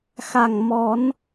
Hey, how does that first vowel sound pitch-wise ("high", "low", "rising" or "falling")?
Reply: low